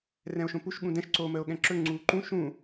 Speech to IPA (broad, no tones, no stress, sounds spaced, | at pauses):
r ɛ̃ o̯ ʃ õ p u ʃ ɠ ũ d ɛ̃ ʃ ǀ oː m əː o̯ ɠ ɛ̃ ǁ ɵ ŋ͡ǀ uː ǃ ũ ʃ ũ